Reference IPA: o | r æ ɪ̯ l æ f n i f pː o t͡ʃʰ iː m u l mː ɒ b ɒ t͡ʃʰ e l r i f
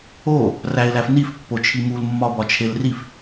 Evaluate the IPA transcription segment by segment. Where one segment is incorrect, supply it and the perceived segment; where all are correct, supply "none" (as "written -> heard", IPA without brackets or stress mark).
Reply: iː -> i